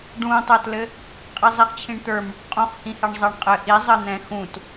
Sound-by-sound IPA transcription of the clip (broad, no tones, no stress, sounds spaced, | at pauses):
ɖ ũ tˤ ə˞ t l ɘ | qʼ i zˤ i χ t͡ɕʰ ĩ ɳ t̪ ə˞ m | qʼ ũ χ h ĩ h ɛ ɳ zˤ ɜ ɳ qʼ ɘ ʔ i zˤ ɘ n̪ ɛ̃ x ũ t